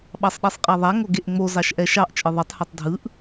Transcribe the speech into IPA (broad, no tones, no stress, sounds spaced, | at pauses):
ɓ ɑ sˤ ɗ ɛ sˤ qʼ a ðˤ a ŋ o ɡ e ʔ ŋ͡m o z ɑ ʃ ʔ ɛ ʃ ɑ ʔ t͡ʃʼ ɯ ðˤ ɛ tˤ h a tˤ dʱ ɯ ʔ